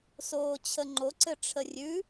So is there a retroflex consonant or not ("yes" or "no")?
yes